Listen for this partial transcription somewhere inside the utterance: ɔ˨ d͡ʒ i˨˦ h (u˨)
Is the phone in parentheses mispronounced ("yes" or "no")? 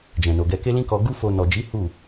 yes